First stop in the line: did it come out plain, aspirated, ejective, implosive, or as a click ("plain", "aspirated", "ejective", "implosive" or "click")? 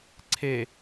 click